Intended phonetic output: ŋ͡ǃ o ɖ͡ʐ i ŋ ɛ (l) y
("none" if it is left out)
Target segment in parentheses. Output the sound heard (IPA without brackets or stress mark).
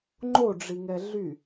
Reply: ɮ